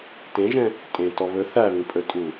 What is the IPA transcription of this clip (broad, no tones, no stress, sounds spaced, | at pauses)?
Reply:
t ẽ ʒ ɛ̃ | tʼ ẽ t ɔ β ɵ θ æ β ĩ pʼ ɵ tʼ u